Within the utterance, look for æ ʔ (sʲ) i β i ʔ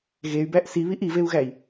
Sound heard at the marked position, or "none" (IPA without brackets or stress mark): s